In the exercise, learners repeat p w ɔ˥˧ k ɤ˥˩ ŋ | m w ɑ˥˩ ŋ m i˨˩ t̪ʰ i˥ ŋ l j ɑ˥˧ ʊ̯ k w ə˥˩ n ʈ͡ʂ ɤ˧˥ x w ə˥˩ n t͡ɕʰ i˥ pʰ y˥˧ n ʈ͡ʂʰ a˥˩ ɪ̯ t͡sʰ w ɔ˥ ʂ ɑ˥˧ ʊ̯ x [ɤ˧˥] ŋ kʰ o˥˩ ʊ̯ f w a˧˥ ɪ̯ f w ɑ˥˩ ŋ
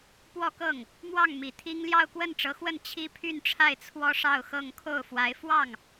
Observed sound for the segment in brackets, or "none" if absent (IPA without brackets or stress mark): ɤ˥˧